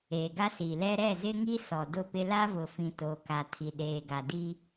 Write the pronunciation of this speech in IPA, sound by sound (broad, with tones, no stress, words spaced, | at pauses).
eː˨ɡa˦ si˨lɛ˦ ɾɛ˦˨zɪ˦ŋi˦ sɔ˨dʊ˦˨pɪ˦ la˦vʊ˨fĩ˨ to˨ka˨ tʰi˨ɗeː˨ɡa˨di˦